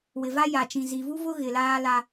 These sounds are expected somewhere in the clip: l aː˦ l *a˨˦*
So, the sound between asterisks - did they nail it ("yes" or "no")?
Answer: no